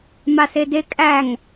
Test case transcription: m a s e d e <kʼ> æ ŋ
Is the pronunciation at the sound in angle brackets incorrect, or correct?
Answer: correct